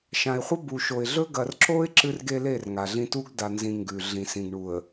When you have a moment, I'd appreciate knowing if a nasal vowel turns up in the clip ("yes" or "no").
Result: yes